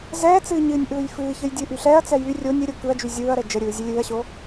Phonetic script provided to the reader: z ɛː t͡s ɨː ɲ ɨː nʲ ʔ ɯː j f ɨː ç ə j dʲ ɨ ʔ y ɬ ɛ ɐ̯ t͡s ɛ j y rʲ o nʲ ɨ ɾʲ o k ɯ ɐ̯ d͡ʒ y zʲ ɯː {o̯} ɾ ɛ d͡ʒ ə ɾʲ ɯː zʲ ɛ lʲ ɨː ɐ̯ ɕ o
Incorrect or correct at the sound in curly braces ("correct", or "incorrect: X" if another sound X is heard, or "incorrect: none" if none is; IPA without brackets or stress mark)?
incorrect: ɐ̯